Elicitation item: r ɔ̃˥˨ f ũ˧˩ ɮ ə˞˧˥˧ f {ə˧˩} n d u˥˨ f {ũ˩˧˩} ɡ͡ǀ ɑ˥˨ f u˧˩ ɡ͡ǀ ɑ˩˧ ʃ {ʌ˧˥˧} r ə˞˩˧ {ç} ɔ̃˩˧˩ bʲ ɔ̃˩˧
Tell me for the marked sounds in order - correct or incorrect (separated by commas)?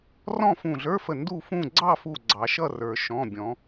correct, incorrect, incorrect, incorrect